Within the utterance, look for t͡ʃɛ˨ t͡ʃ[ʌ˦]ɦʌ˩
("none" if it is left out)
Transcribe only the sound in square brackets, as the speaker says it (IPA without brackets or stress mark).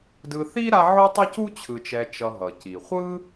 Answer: ʌ˨